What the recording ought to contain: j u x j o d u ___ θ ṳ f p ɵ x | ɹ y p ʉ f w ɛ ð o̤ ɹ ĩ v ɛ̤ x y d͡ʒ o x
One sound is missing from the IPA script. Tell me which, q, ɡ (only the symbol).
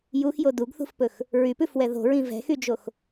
ɡ